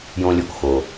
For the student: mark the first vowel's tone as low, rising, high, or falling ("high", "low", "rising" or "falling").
high